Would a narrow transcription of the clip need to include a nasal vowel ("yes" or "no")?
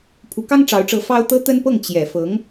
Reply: no